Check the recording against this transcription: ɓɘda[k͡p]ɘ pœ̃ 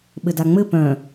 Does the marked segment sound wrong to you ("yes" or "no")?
yes